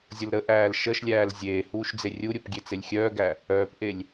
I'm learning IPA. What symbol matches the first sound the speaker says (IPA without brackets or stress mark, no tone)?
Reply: zʲ